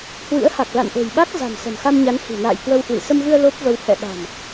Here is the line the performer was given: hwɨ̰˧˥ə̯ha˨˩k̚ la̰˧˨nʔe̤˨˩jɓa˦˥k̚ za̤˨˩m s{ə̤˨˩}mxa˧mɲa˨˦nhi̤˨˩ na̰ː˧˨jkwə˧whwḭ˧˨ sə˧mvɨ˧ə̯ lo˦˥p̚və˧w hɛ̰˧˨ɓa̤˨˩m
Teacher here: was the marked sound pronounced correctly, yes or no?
yes